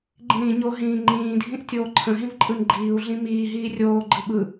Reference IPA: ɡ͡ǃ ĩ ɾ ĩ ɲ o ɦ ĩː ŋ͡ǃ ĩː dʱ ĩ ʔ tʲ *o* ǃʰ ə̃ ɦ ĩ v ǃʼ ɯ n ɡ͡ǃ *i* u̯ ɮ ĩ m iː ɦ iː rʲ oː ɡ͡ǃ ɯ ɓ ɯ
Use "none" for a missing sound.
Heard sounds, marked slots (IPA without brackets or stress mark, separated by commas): oː, iː